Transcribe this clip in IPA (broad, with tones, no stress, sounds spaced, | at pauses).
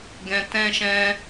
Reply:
ɡ ɛ̃˧ t ɛ̃˦ ʃ ɛ̃˦